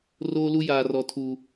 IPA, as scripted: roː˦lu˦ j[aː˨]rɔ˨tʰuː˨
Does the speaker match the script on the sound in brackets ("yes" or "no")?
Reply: yes